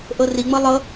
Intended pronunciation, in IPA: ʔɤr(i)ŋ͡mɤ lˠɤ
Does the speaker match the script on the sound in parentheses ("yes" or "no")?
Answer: yes